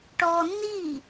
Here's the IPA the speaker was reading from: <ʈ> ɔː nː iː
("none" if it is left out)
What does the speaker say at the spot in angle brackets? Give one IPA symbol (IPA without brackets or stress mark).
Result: ʈ